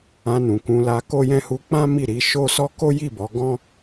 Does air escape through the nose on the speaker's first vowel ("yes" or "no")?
yes